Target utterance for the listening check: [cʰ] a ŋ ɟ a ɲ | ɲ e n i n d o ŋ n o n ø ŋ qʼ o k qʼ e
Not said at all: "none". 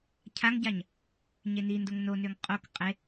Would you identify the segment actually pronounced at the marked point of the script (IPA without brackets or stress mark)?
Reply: cʰ